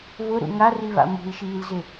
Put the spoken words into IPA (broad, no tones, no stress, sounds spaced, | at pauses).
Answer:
β ʊ ɾ ṵ ŋ a r i β a̰ m ṳ i̯ ʃ iː l z ɪ